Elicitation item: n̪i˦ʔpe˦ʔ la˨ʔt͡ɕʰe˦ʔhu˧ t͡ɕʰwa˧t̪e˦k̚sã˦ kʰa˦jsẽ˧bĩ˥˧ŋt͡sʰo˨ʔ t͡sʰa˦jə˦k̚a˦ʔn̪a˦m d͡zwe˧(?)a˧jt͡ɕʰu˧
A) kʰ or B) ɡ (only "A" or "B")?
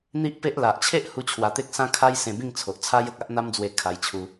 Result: A